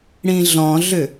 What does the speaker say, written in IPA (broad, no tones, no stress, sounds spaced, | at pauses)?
ɽ ĩ ɮ ɔ̃ ɮ ʏ